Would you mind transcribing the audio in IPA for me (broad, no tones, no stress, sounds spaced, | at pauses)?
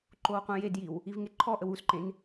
ǃ o w qʷ ẽ j e d j i w | i v ŋ e ǃʰ ɔ ʔ ə w u s ǃ ẽ n